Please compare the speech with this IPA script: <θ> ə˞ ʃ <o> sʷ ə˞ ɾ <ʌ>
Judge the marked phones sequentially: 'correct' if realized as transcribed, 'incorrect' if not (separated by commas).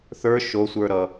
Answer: correct, correct, correct